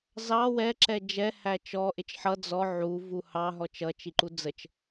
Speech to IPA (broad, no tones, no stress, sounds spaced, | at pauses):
z ɑ w ɛ ǁ ɛ d͡ʒ ɛ h æ t͡ʃ ɔ ʔ ɪ t͡ʃ ħ ʌ d͡z ɔ ʕ u v u h ɑ ɦ ɔ t͡ʃ ʌ t͡ʃ i ǃ u d͡z ə t͡ʃ